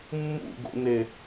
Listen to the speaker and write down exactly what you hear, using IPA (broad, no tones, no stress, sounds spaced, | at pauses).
mː ṵ ɡ o̰ n e